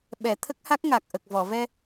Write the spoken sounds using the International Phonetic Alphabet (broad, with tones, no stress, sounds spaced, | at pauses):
ɓ ɛ˨˩˨ t̪ʰ ə˦˥ k̚ h a˦˥ k̚ ŋ a˨˩ k̚ ʔ ə˨˩ k̚ v ɔ˨˩˨ v ɛ˧